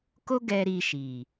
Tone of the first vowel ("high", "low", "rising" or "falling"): high